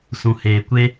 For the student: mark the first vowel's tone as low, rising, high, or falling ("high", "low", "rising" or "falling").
low